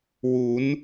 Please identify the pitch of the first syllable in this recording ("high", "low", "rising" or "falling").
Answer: rising